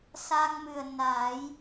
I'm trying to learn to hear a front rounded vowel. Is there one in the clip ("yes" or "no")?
no